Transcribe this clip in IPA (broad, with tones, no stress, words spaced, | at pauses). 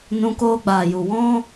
nũ˧koː˧ɡ͡baː˨ju˨ wɔ̃˦